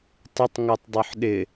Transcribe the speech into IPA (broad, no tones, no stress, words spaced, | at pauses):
tˤɪtˤŋotˤdˤoħ ɗɪ